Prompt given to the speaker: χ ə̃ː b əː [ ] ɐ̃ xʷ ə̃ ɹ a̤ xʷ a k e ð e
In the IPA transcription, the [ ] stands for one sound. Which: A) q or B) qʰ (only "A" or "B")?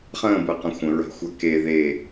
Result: A